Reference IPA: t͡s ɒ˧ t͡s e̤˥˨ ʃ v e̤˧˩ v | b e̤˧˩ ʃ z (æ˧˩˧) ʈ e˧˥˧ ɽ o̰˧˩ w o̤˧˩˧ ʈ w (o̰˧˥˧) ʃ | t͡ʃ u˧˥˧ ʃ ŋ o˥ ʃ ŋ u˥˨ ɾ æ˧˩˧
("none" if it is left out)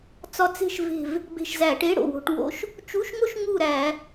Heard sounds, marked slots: æ˧˩˧, o̰˧˥˧

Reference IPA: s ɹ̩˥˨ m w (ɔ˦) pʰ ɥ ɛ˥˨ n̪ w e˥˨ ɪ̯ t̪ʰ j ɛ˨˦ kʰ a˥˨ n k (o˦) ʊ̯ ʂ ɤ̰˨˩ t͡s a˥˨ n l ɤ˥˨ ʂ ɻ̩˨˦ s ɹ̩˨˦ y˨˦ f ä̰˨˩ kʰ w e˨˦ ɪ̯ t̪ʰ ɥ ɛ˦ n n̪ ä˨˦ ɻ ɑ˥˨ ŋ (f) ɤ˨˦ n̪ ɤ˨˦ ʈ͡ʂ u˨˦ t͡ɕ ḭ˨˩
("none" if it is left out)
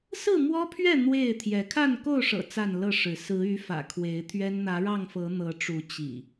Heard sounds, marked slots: ɔ˦, o˥˨, f

